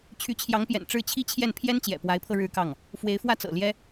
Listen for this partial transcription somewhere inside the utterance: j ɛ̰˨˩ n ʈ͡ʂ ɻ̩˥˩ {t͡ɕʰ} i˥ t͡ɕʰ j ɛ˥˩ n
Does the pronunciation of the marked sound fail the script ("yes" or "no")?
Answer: no